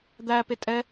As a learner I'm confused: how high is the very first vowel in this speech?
low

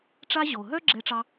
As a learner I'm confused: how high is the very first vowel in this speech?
low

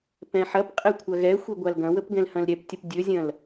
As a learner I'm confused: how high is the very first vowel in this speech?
mid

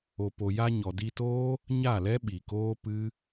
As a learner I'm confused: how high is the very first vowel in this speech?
mid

